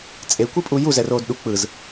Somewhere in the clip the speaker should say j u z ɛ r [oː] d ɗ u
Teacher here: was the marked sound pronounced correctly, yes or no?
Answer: yes